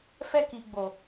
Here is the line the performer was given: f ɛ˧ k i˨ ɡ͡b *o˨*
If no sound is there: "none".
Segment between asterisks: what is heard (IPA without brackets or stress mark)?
o˨